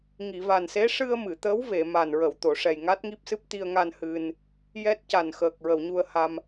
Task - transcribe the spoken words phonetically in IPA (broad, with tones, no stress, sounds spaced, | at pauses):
ŋ i˨˩˨ v a˨˩ n s e˧˥ ʂ ɨ˧ ə̯ m ɨ˨˩˨ t̪ ə˧˥ w v e˨˩˨ m a˨˩ n ɹ ə˨˩˨ w t̪ o˨˩˨ ʂ ɛ˨˩ j ŋ a˦˥ t̚ ŋ i˦˥ p̚ s ɨ˦˥ p̚ t̪ i˧ ə̯ ŋ a˧ n h ɨ˧ n | j ɛ˦˥ t̚ c a˨˩ n x əː˨˩ k̚ ɹ ə˨˩˨ w ɲ u˧ ə̯ h a˧ m